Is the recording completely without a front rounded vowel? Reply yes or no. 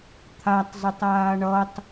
no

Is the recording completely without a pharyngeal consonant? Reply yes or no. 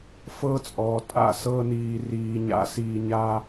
yes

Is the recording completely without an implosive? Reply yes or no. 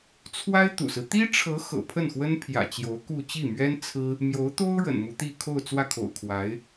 yes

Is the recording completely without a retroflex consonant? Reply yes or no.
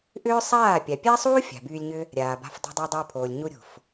yes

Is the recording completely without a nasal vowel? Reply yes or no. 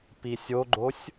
yes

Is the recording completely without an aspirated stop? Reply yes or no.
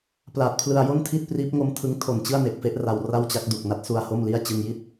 no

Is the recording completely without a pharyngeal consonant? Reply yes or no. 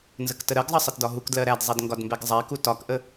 yes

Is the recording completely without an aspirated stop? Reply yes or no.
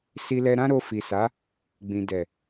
yes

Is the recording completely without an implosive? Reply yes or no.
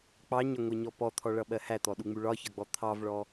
no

